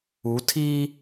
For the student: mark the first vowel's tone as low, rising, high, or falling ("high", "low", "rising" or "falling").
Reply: rising